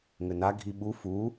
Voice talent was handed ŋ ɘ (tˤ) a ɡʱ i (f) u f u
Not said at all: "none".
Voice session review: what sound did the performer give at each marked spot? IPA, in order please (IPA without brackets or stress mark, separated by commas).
n, ɓ